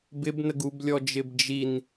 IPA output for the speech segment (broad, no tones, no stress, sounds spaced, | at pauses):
b ɪ b n ə ɡ u b lʲ ɔ d͡ʒ ɪ b d͡ʒ i n